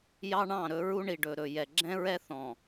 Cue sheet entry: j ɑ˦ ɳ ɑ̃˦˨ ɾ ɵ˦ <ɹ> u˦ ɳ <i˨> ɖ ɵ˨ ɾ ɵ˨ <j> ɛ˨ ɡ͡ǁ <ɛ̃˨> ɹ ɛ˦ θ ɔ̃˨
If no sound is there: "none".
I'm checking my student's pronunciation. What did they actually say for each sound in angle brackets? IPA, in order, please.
ɹ, i˨, j, ɛ̃˦

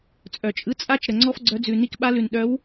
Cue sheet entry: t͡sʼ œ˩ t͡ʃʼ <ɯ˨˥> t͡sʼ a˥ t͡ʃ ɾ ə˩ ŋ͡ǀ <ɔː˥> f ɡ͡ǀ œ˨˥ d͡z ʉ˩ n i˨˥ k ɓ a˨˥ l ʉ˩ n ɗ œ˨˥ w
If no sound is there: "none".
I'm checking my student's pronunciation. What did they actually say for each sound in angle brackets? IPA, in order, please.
ɯ˨˥, ɔ˥

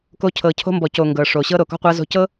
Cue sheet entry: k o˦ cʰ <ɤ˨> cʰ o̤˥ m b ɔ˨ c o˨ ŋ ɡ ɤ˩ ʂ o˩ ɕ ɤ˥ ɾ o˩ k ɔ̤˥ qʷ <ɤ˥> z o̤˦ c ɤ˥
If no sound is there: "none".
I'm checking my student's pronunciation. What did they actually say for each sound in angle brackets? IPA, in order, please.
ɤ˨, ɤ˦

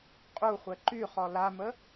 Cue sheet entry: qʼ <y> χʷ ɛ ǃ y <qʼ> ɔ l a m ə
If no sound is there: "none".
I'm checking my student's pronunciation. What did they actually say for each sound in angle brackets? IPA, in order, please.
u, χ

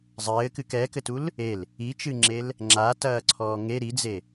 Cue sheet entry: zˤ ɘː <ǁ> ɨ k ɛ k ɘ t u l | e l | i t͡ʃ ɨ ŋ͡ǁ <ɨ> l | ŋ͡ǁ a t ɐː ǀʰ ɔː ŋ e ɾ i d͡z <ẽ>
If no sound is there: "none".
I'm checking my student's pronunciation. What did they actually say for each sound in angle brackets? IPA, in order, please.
k, e, e

